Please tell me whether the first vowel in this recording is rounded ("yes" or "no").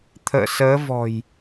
no